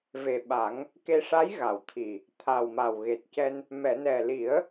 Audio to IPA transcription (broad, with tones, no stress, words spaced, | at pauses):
ve˨˩ɓa˨˩˦ŋ | ke˧ʂa˧˥jɣa˨˩˨wt̪ʰi˨˩ | t̪ʰa˨˩w ma˨˩wɣe˨˩t̚cɛ˧n | mɛ˨˩˨nɛ˨˩li˨˩˦ə̯